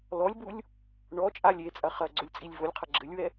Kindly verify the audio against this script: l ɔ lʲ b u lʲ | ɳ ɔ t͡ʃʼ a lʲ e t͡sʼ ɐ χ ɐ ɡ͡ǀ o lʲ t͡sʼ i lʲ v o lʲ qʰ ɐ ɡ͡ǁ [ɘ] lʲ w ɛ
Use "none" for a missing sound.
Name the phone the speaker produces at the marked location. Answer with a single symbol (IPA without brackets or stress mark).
ɘ